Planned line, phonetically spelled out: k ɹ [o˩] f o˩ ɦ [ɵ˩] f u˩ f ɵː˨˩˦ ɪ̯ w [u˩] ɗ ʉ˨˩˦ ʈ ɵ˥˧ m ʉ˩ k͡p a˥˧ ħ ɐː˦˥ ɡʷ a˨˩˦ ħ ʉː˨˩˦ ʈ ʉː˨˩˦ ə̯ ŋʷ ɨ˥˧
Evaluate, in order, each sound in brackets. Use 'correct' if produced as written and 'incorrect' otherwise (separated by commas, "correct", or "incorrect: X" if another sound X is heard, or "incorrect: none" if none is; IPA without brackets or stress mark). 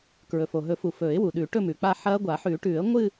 incorrect: ɵ˩, incorrect: ɵ˨˩˦, correct